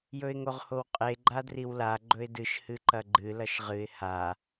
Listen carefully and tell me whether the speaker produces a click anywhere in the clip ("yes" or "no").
yes